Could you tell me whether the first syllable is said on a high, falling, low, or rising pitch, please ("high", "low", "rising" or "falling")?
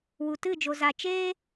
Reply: low